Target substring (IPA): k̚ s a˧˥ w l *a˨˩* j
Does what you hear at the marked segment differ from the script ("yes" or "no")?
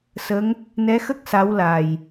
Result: no